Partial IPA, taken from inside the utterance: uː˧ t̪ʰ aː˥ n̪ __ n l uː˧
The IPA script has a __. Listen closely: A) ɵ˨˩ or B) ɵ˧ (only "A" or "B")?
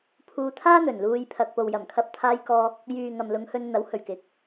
A